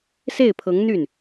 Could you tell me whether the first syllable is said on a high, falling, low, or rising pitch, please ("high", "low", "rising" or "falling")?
falling